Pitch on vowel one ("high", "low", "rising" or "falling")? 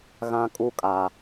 high